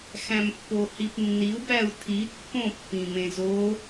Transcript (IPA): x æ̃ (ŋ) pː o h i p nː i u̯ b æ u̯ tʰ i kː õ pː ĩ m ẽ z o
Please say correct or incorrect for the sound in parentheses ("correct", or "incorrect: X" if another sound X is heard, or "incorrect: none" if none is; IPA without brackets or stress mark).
incorrect: m